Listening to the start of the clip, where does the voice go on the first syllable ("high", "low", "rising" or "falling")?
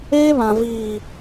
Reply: high